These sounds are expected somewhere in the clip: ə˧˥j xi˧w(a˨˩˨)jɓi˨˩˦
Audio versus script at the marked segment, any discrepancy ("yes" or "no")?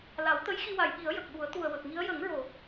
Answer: no